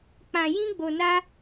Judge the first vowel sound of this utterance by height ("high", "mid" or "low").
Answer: low